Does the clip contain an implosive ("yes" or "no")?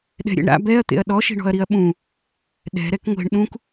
yes